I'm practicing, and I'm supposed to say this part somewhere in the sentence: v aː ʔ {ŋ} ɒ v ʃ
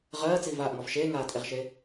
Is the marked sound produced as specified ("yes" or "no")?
yes